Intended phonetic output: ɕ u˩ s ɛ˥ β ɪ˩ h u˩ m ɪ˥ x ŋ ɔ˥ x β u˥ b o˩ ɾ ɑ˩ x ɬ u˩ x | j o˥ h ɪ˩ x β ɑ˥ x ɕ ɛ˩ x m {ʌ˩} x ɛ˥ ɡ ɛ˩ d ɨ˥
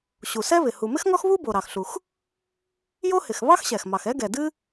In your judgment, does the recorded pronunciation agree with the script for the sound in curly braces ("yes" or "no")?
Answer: no